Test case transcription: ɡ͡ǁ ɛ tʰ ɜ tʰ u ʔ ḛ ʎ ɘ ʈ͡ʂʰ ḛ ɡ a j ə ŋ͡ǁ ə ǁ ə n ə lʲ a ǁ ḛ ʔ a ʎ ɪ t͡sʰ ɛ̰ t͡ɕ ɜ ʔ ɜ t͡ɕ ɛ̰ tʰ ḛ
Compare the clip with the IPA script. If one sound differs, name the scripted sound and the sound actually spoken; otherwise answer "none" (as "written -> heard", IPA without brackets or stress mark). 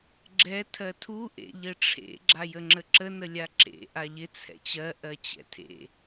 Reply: ɡ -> ɡ͡ǁ